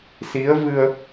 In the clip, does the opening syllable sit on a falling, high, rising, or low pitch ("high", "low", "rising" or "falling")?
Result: rising